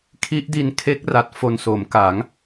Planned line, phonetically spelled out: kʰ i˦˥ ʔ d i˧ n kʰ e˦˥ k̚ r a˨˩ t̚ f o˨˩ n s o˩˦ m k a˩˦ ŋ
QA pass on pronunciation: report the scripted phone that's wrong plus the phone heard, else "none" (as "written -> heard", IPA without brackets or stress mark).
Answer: none